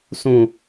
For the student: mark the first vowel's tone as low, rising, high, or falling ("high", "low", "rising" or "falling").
low